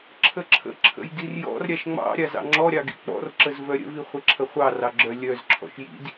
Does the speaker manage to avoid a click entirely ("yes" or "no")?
no